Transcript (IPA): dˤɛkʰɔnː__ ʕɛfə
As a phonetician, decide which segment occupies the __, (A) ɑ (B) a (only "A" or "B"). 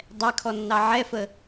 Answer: A